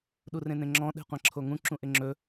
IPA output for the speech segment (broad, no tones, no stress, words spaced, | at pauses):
ɗurẽnẽŋ͡ǁɔ̃ ɗe̤qʷãǁʰoŋũ ǁũʔɪŋ͡ǁɵ